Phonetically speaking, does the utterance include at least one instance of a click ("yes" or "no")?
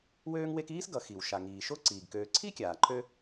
yes